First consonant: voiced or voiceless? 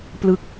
voiceless